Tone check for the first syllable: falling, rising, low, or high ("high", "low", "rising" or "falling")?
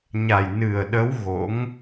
low